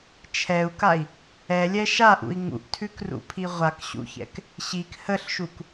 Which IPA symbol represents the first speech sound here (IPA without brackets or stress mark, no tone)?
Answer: t͡ʃʰ